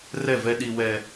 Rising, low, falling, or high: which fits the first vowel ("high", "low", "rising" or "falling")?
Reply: falling